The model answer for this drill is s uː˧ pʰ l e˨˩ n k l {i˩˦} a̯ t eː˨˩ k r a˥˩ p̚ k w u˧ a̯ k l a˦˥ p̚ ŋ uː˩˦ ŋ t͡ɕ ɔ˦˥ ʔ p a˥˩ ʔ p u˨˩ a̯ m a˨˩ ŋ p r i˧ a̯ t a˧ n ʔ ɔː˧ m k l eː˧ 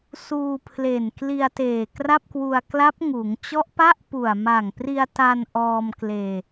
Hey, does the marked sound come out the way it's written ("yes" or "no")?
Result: no